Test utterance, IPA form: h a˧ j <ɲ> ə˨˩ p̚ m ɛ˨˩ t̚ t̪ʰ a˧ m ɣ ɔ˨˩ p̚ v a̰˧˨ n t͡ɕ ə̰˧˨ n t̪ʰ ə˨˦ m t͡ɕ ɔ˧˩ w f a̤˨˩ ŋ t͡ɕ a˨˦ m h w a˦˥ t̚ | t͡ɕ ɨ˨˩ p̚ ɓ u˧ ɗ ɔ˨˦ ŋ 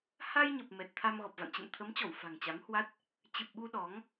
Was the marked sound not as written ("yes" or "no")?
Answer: no